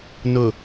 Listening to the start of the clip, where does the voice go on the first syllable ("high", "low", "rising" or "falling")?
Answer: low